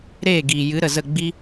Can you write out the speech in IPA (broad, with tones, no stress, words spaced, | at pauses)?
ɾeː˦˨ɡiː˨jɨ˨˦ ɾə˨zə˦˨ɡ͡bi˦